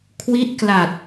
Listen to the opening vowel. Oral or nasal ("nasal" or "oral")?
oral